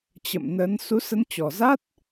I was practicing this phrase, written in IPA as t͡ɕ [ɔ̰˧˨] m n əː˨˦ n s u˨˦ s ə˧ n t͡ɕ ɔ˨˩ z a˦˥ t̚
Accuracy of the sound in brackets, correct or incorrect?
incorrect